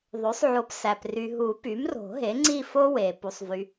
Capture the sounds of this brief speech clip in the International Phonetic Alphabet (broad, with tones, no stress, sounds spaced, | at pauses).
ðˤ ø˩˥ sˤ ʕ o˨˩˦ p s æ˨ p r y˨ ɦ u˨˩˦ p y˩˥ m r o̤˨˩˦ ɦ e˩˥ ŋ͡ǀ i˥˧ f o˥ w e˨ p u˨ sˤ v y˨